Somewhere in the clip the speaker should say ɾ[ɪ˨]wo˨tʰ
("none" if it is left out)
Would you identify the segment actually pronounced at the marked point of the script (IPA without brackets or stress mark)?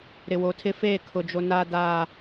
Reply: ɪ˨